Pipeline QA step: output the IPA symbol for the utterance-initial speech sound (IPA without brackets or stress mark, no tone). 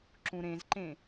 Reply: ǁ